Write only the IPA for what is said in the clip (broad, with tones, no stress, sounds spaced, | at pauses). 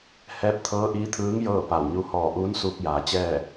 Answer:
h ɛː˧˥ p̚ t̪ʰ ɤː˧˥ ʔ iː˧˥ t̪ʰ ɯː˧˥ ŋ j ɤː˥˨ p a˧˩ w ɲ u˧ h ɔː˧˩ ʔ uː˧˥ n s uː˧ k̚ j aː˩˧ t͡ɕ ɛː˥˨